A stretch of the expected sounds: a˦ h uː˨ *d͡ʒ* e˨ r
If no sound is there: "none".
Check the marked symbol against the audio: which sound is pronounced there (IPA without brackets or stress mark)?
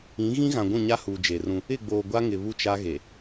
d͡ʒ